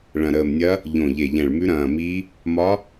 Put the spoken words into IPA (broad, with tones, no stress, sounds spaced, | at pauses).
ɭ ɐ̃˨˩ ɾ əː˨˩ m nʲ ɐ˧˥ | ʎ õ˨˩ ʎ e˨˩ ʎ ɛ̃˨˩ ɭ m ʉ˧˥ ɾ ɐ̃ː˨˩ m i˧˥ | m ɒ˧˥